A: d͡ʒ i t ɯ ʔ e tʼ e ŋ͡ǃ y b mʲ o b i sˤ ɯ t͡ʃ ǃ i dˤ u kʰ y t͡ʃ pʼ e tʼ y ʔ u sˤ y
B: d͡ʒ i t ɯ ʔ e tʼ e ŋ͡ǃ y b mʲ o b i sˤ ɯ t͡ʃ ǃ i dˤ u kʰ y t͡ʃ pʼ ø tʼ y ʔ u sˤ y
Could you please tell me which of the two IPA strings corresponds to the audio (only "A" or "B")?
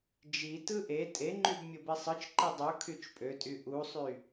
B